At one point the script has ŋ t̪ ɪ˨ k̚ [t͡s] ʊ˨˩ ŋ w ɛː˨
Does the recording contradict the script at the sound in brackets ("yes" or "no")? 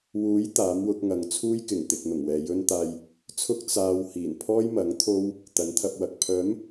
yes